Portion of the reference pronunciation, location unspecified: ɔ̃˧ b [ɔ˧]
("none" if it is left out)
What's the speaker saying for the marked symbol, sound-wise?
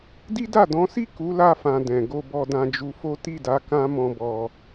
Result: ɔ˧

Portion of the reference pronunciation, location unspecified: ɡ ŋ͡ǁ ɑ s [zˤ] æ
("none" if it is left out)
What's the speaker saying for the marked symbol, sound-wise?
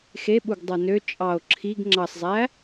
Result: zˤ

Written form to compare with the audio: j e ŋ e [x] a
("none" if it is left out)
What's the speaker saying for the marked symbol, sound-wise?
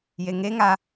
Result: ŋ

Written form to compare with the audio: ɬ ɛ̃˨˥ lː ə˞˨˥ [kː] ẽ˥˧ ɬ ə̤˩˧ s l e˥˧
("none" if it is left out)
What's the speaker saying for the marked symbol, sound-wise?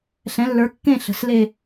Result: kː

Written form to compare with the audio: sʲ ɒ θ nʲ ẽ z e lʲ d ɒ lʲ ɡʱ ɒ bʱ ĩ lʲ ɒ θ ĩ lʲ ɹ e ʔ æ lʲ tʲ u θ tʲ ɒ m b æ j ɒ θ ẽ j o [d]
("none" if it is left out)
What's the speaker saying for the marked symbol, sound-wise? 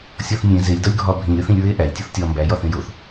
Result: θ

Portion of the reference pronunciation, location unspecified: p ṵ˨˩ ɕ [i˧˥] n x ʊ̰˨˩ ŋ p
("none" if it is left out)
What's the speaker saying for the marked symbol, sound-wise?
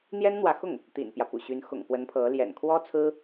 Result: y˧˥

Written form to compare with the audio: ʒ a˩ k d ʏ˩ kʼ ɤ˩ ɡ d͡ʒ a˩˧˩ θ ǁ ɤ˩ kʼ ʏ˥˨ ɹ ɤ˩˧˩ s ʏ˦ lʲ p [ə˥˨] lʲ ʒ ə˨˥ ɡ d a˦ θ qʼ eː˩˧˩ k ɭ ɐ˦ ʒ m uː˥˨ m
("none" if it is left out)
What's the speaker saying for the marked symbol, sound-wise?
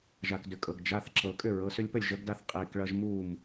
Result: ə˥˨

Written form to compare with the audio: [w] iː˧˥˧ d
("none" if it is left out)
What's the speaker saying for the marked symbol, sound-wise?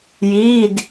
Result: j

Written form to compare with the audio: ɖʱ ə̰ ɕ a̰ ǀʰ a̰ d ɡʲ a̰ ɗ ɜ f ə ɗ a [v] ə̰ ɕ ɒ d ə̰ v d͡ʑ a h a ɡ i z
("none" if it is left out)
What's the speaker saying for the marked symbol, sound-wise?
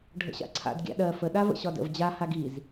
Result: v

